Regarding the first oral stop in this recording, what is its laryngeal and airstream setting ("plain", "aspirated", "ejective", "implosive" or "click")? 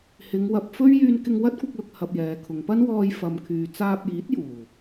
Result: plain